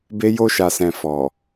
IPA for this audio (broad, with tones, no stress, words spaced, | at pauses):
be˧jo˧ʃa˨sɛ̃˨ fɔ˨